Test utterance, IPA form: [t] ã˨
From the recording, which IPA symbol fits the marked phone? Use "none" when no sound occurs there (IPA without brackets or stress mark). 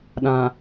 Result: ɗ